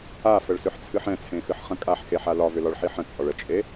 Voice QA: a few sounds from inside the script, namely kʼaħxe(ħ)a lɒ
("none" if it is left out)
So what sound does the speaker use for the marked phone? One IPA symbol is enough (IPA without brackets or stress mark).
ħ